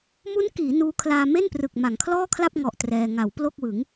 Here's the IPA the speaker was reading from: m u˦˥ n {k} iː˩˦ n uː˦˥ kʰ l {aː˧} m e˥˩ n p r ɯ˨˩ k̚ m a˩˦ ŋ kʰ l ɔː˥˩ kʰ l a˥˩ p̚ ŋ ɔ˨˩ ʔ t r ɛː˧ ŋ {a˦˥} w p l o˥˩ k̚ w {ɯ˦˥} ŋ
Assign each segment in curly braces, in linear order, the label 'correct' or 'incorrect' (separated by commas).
correct, correct, incorrect, incorrect